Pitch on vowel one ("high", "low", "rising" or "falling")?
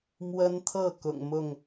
high